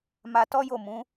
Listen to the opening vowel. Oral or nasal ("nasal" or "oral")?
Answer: oral